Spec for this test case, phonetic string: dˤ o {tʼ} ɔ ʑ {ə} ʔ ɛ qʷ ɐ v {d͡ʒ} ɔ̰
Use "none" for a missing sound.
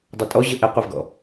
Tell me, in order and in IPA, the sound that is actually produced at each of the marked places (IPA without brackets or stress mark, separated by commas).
tʼ, ə, ɡ